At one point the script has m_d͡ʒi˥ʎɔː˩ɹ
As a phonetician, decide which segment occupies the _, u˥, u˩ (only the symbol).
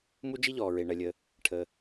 u˥